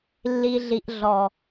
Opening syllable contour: low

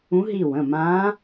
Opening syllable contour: rising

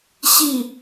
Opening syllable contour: falling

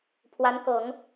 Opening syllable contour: rising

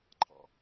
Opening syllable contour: low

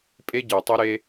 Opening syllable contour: high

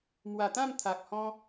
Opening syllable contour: low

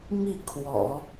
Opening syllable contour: falling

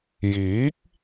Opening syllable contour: rising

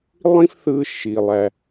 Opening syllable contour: high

